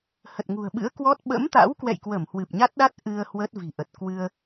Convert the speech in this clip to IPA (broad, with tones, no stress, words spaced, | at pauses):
hə˨˩t̚ŋṳ˨˩ə̯ɓɨ̰˧˥ə̯kwɔ˦˥t̚ ɓə̰˧˥mt̪a̰˧˥wkwɛ̰˧˨jkwə˧˩m hwɨ˨˩p̚ɲa˦˥t̚ɗa˦˥t̚ ʔɨ˧ə̯ hwə˦˥t̚ vi̤˨˩ʔə˨˩t̚ kwɨ˧ə̯